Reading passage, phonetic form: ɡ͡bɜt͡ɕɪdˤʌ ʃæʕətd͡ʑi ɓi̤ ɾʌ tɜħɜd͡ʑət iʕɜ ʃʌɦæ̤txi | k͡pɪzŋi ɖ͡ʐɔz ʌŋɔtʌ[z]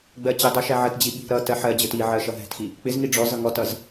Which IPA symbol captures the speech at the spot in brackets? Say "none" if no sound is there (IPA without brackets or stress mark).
z